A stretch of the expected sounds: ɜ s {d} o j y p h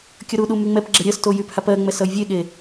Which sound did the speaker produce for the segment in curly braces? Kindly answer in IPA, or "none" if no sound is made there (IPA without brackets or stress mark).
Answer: t